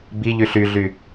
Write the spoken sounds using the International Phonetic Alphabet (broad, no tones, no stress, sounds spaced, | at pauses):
b i ʎ y ɬ y ɮ y